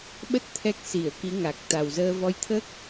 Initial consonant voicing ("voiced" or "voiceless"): voiced